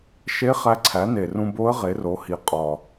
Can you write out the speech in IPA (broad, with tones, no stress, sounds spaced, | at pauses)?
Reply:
ʃ e˧˥ χ æ˧ ǀʰ æ˩˥ n e˨˩ r ũ˧ b o˧˥ ə̯ ʁ e˩˥ r o˩˥ h i˨˩ qʼ ɒ˨˩